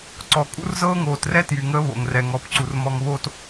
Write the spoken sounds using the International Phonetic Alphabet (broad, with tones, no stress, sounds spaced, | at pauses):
ǀ ɔ˨ kʼ ṵ˦ r z ɤː˦ ŋ oː˨ t r ɛ˦ t j y˨ ŋ əː˦ β o̰˨ ŋ r ɛ˨ ŋ ɔ˨ p ǀ u˨ r m ɔ˨ ŋ β o˦ t